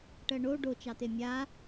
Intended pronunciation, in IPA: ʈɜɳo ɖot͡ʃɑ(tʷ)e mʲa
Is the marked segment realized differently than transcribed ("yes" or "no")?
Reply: yes